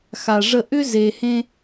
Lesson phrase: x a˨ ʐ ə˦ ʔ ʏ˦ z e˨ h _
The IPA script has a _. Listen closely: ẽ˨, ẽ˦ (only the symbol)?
ẽ˦